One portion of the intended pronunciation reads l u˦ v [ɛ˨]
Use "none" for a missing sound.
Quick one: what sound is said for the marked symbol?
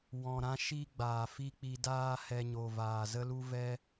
ɛ˦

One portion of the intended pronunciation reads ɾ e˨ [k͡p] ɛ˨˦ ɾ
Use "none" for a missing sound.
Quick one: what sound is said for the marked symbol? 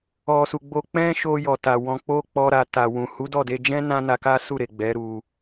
ɡ͡b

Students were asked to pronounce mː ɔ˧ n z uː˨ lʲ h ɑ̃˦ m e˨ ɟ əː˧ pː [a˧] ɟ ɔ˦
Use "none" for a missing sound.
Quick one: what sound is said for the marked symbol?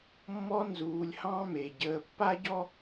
a˦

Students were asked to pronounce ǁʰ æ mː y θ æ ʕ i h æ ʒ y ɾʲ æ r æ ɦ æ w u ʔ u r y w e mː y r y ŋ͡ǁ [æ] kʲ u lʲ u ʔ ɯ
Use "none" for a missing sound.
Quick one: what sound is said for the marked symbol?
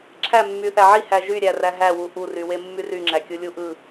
æ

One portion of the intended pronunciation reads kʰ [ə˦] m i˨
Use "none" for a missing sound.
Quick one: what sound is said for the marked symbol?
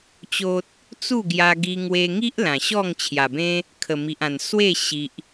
ə˨˩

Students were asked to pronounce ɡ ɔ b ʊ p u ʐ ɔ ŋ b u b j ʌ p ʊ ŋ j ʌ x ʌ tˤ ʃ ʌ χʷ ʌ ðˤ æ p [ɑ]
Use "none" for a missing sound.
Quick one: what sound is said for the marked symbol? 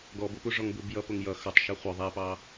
ɑ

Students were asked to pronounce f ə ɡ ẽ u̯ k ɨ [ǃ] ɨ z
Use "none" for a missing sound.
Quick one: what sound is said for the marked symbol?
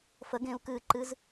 ǃ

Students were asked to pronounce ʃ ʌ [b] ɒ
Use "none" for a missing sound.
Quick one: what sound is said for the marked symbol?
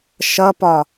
p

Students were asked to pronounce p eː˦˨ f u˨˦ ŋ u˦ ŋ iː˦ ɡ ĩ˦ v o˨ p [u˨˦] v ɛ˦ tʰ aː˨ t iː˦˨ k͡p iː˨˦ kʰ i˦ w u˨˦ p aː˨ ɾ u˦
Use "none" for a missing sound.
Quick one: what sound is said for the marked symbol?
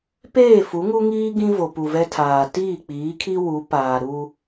u˨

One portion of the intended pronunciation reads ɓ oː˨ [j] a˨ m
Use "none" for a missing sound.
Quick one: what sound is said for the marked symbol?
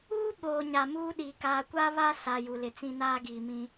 ɲ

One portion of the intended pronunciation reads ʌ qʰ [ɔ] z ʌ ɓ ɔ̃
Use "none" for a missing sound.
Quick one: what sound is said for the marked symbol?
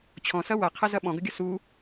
ʌ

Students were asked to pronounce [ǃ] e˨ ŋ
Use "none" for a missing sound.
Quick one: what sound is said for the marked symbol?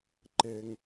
ǃ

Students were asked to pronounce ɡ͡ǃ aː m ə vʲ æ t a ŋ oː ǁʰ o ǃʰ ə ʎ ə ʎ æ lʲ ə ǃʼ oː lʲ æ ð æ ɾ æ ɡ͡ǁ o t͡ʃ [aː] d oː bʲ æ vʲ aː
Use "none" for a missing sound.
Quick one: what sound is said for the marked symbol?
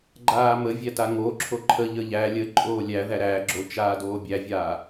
aː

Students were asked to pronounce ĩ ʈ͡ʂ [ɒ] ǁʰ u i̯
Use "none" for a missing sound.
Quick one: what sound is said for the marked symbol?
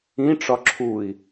ɒ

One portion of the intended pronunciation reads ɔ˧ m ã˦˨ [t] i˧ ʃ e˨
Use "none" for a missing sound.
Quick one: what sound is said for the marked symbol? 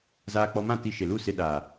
t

